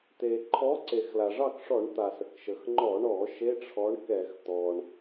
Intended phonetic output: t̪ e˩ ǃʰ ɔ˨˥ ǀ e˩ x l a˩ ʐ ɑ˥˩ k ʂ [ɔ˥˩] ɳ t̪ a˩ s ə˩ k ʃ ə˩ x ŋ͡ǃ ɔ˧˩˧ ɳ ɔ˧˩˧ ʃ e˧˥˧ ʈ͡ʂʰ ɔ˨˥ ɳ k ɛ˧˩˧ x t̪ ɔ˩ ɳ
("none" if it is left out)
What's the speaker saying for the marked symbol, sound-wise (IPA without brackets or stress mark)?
ɔ˧˩˧